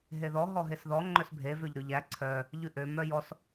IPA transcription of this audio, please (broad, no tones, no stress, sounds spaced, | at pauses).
ɦ e ð ɔ ɦ ɔ ɦ e s ð ɔ ŋ͡ǃ œ s bʱ e v ø ʎ ɾ ʉ ʎ æ ǀʰ œ | ʎ ʉ ʔ ø m œ j ɔ s